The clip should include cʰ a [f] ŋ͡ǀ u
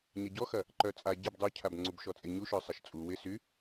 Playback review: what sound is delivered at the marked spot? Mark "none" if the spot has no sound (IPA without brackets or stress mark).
b